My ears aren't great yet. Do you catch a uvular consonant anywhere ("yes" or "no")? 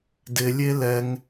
no